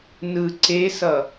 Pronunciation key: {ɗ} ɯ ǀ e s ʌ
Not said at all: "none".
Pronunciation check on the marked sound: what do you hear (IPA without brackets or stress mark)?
n